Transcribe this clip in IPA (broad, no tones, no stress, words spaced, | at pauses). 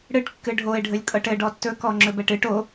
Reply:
ɽɨʈkːɨ ɖʱoɪ̯ɖʱɵlʲ kʼɤʈɘɖɔ tːɵkɔŋ͡ǁɵ bɛʈɨʈ o